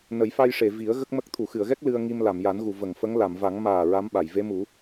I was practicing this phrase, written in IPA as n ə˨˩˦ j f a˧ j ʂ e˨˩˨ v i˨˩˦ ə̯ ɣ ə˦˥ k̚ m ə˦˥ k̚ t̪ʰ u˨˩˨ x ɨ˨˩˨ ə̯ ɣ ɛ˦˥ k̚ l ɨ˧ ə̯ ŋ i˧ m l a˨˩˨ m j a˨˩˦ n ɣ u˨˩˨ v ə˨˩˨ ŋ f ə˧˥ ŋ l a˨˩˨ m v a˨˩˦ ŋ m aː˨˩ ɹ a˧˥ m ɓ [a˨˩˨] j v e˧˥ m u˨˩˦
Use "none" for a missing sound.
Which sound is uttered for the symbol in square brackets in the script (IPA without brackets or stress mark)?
a˨˩˨